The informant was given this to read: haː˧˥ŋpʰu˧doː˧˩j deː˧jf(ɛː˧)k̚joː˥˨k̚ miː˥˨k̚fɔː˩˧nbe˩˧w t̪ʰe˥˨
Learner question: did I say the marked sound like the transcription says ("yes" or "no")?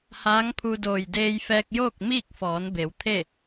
yes